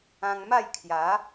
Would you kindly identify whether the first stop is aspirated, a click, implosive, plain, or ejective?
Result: aspirated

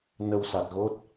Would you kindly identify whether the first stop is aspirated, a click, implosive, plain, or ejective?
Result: plain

